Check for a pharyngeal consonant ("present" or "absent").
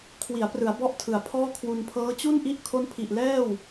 absent